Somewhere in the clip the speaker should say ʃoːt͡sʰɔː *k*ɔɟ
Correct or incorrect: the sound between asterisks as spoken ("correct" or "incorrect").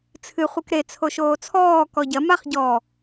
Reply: correct